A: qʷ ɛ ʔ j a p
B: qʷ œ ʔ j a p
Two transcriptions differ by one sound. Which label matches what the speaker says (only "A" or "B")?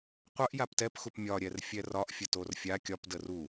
B